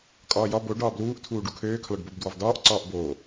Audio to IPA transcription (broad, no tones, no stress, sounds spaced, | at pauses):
kʼ ɒː j ɒ b o ɖ ɒː b l uː ʔ tʰ uː ɖ u kʰ øː kʰ l ɒ ɖ b o b d w ɒ v d ɒː ʔ ǀ ɒː ʔ b oː